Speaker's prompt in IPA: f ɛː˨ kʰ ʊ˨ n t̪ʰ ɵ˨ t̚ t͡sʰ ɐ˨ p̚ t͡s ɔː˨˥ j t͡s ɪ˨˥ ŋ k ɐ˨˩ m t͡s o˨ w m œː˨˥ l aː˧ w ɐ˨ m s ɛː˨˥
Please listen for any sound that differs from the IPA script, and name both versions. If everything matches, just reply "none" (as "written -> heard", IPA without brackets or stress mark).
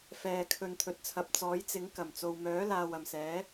ʊ˨ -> ɵ˨